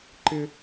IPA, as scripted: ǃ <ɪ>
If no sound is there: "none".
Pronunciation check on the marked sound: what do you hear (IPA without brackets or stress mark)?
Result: ɪ